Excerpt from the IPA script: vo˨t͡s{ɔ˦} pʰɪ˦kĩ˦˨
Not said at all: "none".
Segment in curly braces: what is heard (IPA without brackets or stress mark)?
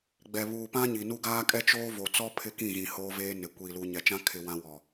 ɔ˦